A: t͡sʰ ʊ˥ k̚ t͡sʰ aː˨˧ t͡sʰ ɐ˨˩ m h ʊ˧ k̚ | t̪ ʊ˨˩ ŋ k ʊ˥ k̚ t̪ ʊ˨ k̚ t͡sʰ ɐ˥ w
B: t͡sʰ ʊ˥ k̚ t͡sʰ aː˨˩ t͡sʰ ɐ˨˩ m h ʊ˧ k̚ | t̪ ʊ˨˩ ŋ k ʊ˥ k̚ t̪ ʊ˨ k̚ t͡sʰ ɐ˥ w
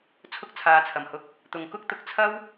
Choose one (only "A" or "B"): A